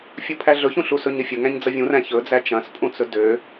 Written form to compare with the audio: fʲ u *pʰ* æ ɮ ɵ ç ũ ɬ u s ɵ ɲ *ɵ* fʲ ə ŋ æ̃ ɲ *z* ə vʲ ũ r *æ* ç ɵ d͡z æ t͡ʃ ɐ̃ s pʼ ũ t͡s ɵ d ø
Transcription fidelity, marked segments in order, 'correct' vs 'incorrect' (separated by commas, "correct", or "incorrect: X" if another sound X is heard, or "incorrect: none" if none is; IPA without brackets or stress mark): correct, incorrect: ə, incorrect: d͡z, incorrect: æ̃